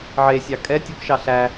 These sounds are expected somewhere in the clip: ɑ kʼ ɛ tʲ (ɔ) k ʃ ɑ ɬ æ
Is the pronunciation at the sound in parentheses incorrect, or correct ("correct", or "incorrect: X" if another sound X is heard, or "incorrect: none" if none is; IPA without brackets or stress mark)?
correct